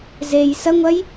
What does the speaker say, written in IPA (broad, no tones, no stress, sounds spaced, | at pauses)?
z e j s ɐ ŋʷ ɐ j